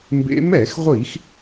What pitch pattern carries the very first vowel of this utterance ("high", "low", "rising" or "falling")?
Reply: rising